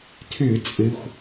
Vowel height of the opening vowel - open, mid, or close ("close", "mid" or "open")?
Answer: close